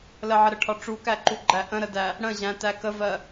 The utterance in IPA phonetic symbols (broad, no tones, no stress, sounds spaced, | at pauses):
l ə ʕ ə ɾ ə ʈʰ ɒ ʈ͡ʂ u k æ ǃ u ɡ͡ǃ æ ʔ ə̃ ɾ ə d æ | ɽ ə̃ ʑ æ̃ t æ k ə v ɜ